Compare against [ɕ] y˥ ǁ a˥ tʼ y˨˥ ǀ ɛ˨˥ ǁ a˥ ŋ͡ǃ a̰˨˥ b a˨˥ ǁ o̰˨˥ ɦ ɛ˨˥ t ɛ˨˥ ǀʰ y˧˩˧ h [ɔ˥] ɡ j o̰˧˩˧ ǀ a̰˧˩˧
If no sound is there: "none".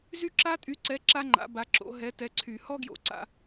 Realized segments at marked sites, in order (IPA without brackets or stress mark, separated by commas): z, ɔ˥